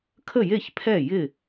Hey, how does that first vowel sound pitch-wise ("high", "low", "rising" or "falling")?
falling